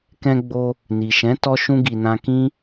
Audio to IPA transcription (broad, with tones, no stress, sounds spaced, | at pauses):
k ɛ̃˧ ɡ͡b o˧ | n i˨ ʃ ɛ̃˨˦ t ɔ˧ ʃ ũ˦ ɡ i˧ n ã˧ k ĩ˦